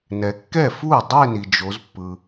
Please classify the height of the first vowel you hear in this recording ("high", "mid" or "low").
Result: mid